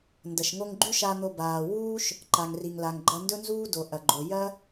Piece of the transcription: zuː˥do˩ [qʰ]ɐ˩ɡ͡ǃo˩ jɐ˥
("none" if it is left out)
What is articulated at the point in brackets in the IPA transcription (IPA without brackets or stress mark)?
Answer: ʔ